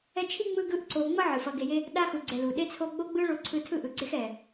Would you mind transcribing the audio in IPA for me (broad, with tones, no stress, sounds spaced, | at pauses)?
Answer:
ɛ˦ t͡ʃʰ i˥ ŋ͡m ɯ˦ ɡ ɯ˦ ʔ ǀ o˨ ŋ͡m ʌ˥ ʕ ɯ˩ f ʌ˨ ɡ e˨ j e˦ | ɗ a˥ x u˨ ɡ͡ǀ ɛ˨ l u˩ ɗ e˥ t͡sʰ o˥ ɡ͡b o˥ ɡ͡b ɯ˥ ɭ o˦ ǀʰ ɯ˦ tʰ ɯ˥ ʔ ɯ˨ ɡ͡ǀ e˥ x ɛ˩